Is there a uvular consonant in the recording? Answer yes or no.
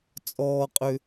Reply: yes